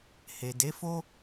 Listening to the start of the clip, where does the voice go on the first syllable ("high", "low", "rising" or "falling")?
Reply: low